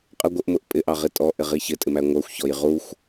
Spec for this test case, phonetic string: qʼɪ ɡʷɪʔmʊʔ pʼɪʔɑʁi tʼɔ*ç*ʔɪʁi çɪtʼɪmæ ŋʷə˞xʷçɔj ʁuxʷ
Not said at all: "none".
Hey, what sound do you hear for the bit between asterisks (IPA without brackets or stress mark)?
none